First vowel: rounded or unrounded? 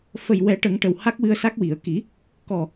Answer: unrounded